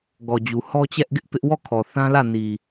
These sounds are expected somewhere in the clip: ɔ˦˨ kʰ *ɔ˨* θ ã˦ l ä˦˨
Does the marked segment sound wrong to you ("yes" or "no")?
no